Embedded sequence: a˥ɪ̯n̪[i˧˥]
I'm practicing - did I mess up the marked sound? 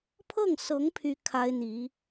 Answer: no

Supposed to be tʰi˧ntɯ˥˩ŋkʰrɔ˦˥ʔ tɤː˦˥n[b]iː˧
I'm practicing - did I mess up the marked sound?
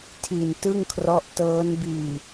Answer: no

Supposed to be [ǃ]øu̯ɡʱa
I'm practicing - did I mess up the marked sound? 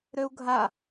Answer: yes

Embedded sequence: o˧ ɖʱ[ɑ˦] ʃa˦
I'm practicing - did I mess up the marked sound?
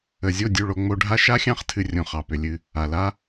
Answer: yes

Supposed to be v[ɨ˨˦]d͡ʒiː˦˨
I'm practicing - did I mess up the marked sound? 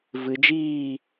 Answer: no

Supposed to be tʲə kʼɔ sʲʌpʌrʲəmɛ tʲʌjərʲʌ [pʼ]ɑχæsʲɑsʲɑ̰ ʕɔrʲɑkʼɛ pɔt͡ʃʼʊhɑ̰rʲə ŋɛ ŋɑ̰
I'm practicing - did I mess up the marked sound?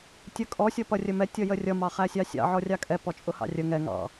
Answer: yes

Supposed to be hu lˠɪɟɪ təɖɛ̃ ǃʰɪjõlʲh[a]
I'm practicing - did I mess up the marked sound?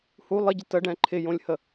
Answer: yes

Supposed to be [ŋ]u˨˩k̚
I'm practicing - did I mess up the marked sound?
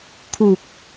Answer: yes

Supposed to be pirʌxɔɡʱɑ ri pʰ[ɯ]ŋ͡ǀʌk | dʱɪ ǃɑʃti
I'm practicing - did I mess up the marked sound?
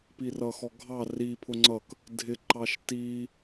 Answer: yes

